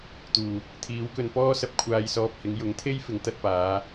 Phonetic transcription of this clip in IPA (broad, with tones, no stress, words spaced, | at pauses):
t̪uː˨˩ | t̪ʰiː˨˧wkɵ˧n pɔː˥sɐ˧p̚ kʷʰaː˨jsɔː˨p̚ hɪ˨˧ŋjʊ˨˥ŋt̪ʰe˥jfɪ˨˧ŋ t̪ɐ˧t̚paː˨˧